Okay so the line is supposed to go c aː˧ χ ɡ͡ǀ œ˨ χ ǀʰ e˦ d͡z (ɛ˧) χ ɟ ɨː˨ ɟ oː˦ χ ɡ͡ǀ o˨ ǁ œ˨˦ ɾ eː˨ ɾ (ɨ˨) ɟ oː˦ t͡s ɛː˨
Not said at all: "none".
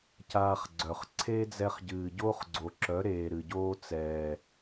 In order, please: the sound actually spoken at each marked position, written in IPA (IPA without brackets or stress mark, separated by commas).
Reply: ɛ˧, ɨ˨